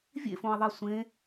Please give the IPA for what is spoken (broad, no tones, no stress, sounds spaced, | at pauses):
vʲ ḛ f õ e̯ ðˤ e sʷ ẽ